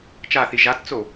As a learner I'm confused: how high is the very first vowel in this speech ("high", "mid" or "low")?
low